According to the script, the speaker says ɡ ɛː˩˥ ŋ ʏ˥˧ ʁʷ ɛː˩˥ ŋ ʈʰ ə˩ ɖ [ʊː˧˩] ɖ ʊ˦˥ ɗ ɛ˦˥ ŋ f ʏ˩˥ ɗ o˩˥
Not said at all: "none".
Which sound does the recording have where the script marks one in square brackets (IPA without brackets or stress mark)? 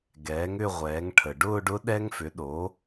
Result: ʊː˥˧